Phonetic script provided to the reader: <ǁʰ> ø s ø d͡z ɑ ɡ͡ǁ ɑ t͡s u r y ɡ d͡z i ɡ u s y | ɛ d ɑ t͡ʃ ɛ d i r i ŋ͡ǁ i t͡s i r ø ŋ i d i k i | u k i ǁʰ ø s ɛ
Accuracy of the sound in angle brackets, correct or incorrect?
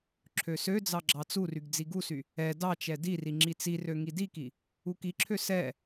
correct